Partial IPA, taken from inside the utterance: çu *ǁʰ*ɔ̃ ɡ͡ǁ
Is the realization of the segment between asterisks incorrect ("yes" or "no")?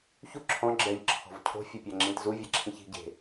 no